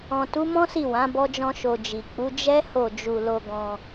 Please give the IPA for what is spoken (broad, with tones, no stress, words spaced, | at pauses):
ɔ̃˨tu˨˦mɔ̃˦ si˦˨wã˨˦ bɔ˦d͡ʒɔ̃˦ʃo˧ d͡ʒi˨ k͡pu˨˦ d͡ʒɛ˦ ho˦˨d͡ʒu˧ lo˧ɡɔ̃˧